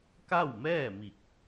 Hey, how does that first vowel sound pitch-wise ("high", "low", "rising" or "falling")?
falling